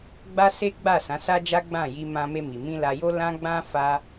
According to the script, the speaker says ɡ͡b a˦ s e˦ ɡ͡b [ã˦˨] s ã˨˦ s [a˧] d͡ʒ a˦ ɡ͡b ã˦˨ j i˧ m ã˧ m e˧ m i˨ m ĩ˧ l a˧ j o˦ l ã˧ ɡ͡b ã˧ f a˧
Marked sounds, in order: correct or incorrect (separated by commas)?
incorrect, incorrect